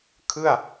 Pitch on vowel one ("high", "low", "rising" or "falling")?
falling